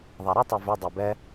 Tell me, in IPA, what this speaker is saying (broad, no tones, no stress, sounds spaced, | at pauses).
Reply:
ðˤ æ ɾ ɨ tˤ ɛ v ʏ dˤ æ b ɛ